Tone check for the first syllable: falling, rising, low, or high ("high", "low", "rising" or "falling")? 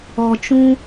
low